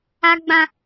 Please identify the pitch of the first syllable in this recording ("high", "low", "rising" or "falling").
high